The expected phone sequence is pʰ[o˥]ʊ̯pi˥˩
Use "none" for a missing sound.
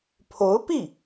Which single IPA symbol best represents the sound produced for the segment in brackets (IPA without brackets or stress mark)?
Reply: o˧˥